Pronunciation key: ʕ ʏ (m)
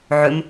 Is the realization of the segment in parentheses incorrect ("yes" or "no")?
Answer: no